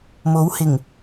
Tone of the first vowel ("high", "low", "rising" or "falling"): rising